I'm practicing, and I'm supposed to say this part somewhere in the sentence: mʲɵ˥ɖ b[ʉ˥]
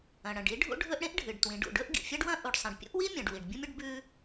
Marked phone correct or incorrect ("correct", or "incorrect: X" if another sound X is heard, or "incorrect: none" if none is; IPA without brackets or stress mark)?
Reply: correct